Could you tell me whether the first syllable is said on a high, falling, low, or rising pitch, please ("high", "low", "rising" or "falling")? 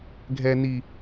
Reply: low